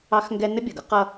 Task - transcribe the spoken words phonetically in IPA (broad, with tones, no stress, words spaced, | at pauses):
ɑ˥xŋɡɛ˥ nə˥bʲʌ˩ɡʌ˥ qʌ˥